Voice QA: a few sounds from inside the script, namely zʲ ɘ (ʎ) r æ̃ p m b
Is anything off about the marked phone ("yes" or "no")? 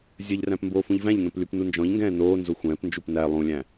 no